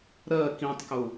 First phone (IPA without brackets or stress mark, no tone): ɾ